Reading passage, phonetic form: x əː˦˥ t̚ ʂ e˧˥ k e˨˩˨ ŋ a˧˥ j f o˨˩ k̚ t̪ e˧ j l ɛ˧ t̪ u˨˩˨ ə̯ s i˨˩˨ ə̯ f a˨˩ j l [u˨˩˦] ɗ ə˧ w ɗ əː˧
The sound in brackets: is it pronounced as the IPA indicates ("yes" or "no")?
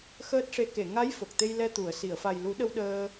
yes